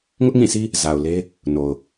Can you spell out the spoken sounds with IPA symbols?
ŋ ʊ˦ ʔ ŋ ĩ˦˨ sʰ i˦ | z a˨ ʊ̯ l e˦ | n o˨ ʊ̯

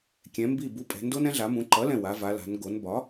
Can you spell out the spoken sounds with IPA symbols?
kʲ ɛ̃˩˧ m b i˧˩ b u˩˥ pʼ ɛ̤˩˧ n d o˦ n ɛ̃˦ ɮ a˩˧ m ũ˩˧ ǃ ʌ˩˥ l ɛ̃˧˩ w a˩˧ v a˩˧ l a̤˩˧ n ɡ o˩˧ n b ɒ˩˥

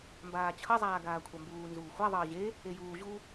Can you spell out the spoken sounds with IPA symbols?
m b aː t͡ɕʰ ʌ zˤ aː ɡ aː kʷʰ a m b uː n z uː xʷ a ðˤ ʌː ʑ e | e j uː ʑ u

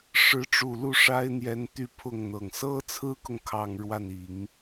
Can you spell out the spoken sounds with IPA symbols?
ʂ ɻ̩˧˥ ʈ͡ʂ u˨˩ l u˥˩ ʂ a˥ ɪ̯ n̪ j ɛ˧˥ n t̪ y˥ pʰ ʊ˥˩ ŋ n̪ ɤ˨˩ ŋ s ɤ˥ t͡sʰ ɹ̩˥ k ʊ˨ ŋ kʰ ɑ˥˧ ŋ ɻ w a˥˩ n i˨˩˦ ŋ

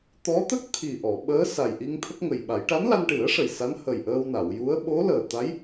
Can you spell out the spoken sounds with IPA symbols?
t̪ ɔ˧˥ t̪ ə˦˥ k̚ t̪ʰ i˨˩ ʔ ɔ˨˩˨ ɓ əː˧˥ s a˨˩ j ʔ i˧ ŋ t̪ʰ ə˦˥ k̚ ŋ ə˨˩ j ɓ a˨˩˦ j ʈ a˧˥ n l a˧ n ʈ ɨ˨˩˦ ə̯ ʂ ə˨˩ j s a˧˥ n h ə˨˩ j ʔ əː˧ w n a˨˩˨ w j u˧˥ ə̯ ɓ o˧˥ l əː˨˩ t̪ a˧˥ j

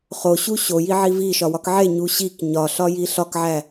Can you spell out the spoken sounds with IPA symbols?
χ o ɕ u ɕ o j i ʕ i v i ʃ ɒ w ɒ k ʕ e ɲ u ɕ i k ɲ ɒ ɬ ɒ j i ɬ ɒ k ʕ æ

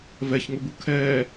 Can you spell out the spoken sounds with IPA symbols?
v ɛ ç ŋ ʊ b u kʰ ɛː

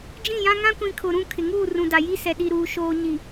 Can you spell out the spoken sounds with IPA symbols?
d͡ʒ ĩ˦˨ j ã˦ ŋ ã˦ kʷ ĩ˨ kʰ ʊ˨ ɾ ũ˦˨ kʰ ɪ˨ ŋ uː˦˨ r ũ˨ d a˨ j i˦ s ɛ˨ ɗ i˨ ɾ uː˨ ʃ oː˨ ɲ i˨

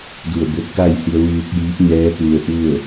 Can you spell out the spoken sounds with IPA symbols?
d u˧˩ ə̯ b o˧ t̚ k a˥˨ j h i˧ ə̯ ʋ ɯː˧ k̚ j iː˧˥ p̚ ɲ ɛː˧˥ p u˧ ə̯ ʔ u˥˨ ə̯

